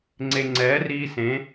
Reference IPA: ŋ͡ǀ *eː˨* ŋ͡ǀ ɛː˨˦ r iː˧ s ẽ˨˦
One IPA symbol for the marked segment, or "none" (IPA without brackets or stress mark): e˨